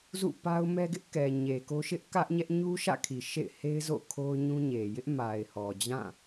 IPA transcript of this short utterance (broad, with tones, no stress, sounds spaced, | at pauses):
z ṵ˦˨ p a˦ ʊ̯ m ɛ˦ ɡ ɪ˦ ʔ k ɛ˨ ɲ e˨ k o˦ ʃ ɪ˦ ʔ k ä˦ ʔ ɲ ɛ˦ ʔ ɲ u˦ ʃ ä̰˦˨ kʰ i˨ ʃ ḛ˦˨ ɪ̯ h e˦ ɪ̯ z o̰˦˨ kʰ o˦ ʊ̯ ɲ ũ˦ ɲ e˨ j ɪ˦ ʔ m a˨ ɪ̯ h ɔ˨ d͡ʑ ã˦˨